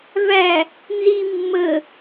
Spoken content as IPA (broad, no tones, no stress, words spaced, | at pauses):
væ | nzi mːə